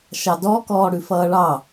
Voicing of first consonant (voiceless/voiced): voiceless